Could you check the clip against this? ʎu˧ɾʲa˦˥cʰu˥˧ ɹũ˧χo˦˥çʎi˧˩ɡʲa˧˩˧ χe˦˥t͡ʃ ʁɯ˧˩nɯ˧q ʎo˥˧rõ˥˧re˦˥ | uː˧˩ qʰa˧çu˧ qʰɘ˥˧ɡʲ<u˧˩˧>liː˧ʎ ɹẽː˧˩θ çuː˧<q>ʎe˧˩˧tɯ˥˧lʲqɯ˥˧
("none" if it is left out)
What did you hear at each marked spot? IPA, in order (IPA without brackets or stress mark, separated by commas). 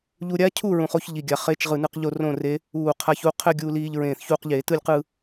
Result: u˧, q